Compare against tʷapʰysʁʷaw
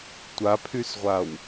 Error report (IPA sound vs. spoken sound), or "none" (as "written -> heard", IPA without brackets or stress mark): none